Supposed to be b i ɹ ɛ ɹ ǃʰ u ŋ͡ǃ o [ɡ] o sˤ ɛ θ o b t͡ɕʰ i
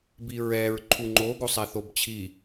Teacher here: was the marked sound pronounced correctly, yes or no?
yes